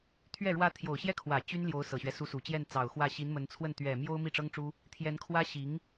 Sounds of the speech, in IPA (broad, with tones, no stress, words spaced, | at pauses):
t̪ʰɥɛ˥˩ ɻwä˧˥ t̪ʰjo˨˩ʊ̯ɕjɛ˥˩ kʰwä˨˩ t͡ɕy˥n ljo˧˥ʊ̯sɤ˨˩ɕɥɛ˦ su˧˥su˨˩t͡ɕjɛ˥˩n t͡sɑ˨˩ʊ̯xwä˥˩ ɕi˧˥nmə˧˥nt͡sʰwə˥˩n t̪ɥɛ˨˩ mjo˥ʊ̯ mi˥˩ʈ͡ʂɤ˥ŋʈ͡ʂu˥ | t̪ʰjɛ˧˥nkʰwä˥ ɕi˧˥ŋ